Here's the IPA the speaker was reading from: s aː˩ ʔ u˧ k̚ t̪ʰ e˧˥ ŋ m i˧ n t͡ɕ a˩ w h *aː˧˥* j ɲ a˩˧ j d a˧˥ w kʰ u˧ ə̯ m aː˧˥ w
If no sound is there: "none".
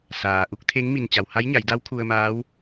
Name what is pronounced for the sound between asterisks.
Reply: a˧˥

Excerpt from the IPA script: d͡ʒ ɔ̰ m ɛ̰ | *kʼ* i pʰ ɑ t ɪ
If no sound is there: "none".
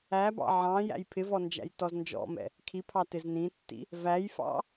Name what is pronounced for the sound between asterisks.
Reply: kʰ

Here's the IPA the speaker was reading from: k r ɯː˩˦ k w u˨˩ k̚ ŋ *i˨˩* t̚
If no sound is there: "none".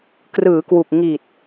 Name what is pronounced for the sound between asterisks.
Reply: i˨˩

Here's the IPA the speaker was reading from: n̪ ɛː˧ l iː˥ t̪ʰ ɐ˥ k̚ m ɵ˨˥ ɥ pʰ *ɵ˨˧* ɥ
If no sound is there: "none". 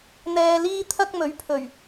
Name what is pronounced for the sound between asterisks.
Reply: ɵ˨˩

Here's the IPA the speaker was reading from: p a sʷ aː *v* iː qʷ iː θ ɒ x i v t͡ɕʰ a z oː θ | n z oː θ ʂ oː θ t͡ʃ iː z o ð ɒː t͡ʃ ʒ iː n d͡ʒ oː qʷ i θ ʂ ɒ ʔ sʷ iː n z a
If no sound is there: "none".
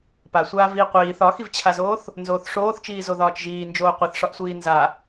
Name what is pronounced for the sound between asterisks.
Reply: v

